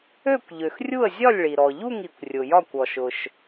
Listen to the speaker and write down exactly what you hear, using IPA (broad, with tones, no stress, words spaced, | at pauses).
ø˦˨kʷʎø˩x rʲu˦˨ə̯zʲɒ˦˨lʲɭi˩ ɾɔ˩ʎu˦˨ŋi˩kʷ rʲʊ˩jɒ˦˨kʷ ɔ˩ʃʊ˩ʃ